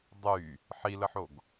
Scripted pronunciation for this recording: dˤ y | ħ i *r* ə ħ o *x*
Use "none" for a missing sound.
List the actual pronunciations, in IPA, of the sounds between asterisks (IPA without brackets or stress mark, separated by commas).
l, ɡ